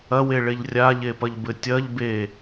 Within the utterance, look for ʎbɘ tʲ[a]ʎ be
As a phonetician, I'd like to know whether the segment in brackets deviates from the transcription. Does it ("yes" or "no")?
yes